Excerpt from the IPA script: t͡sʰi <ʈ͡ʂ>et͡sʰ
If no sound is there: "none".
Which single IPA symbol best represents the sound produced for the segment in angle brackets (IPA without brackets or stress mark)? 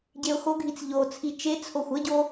t͡ʃ